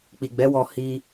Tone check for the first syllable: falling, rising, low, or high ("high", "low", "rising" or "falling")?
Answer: low